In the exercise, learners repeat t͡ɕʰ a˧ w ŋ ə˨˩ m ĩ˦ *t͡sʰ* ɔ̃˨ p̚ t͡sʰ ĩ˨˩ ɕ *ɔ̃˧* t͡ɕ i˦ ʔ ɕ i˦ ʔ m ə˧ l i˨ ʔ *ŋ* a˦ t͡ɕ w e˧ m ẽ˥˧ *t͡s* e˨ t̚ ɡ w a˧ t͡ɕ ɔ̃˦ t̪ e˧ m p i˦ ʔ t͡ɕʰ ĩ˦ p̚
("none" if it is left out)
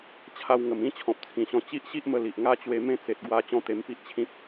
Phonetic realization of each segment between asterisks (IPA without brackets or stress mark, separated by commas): t͡ɕʰ, ɔ̃˧, ŋ, t͡s